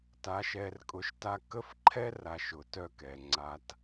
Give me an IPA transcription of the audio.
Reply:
t a˧ ʃ ɛ˧ r kʼ ʊ˧ ʃ t a˦ k ə˦ f ǃʰ ɛ˦ r a˨ ʃ ʊ˨ t œ˦˨ k ɛ˨ ŋ͡ǀ a˧ t

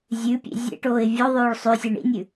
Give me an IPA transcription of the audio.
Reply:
zʲ ʉ pʲ ḛ zʲ ḛ ʈ oː ɪ̯ vʲ o ðˤ ʉː ɭ sˤ ʉ sʲ e ɳ ḭ nʲ ʉ

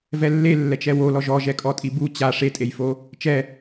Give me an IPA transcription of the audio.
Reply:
v ɛ lː e lː ɛ t͡ʃ ɛ w o l ɔ ʒ ɔ ʒ ɛ kʼ ɔ tʼ i b u t͡ɕ a ʂ e tʼ e j f o | t͡ʃ ɛ

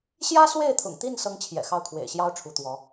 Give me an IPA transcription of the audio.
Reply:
ɕ j ä˥ s w e˥˩ ɪ̯ t̪ʰ ʊ̰˨˩ ŋ t̪ i˥˩ n s ɤ˥ ŋ t͡ɕʰ j ɛ̰˨˩ x ɑ˥˩ ʊ̯ kʰ w ḛ˨˩ ɪ̯ ɕ j ɑ˥ ʊ̯ ʈ͡ʂʰ u˧˥ t̪ w ɔ˧˥

